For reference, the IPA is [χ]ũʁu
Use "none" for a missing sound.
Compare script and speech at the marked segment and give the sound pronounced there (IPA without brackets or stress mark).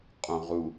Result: qʼ